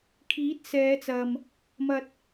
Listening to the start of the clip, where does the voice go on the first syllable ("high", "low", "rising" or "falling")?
rising